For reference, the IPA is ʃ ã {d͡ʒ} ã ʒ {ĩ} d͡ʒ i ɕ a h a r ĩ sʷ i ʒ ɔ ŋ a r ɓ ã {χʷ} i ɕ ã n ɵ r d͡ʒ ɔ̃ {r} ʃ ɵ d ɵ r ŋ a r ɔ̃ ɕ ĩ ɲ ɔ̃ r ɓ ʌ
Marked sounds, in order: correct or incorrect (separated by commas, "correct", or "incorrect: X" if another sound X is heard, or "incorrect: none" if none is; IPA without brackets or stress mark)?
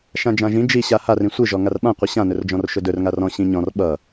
correct, correct, incorrect: qʷ, correct